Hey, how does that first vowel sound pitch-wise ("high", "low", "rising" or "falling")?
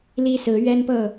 high